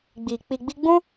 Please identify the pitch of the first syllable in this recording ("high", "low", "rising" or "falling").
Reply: low